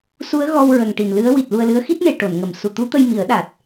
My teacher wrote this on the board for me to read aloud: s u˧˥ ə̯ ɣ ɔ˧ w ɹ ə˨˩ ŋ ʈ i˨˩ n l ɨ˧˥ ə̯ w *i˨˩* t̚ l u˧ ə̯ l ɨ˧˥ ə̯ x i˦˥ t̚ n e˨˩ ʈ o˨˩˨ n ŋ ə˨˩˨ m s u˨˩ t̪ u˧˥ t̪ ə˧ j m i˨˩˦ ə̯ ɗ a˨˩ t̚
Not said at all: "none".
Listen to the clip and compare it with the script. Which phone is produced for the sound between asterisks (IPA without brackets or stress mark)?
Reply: i˨˩